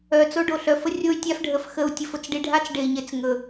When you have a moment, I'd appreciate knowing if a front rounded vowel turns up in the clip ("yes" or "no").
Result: yes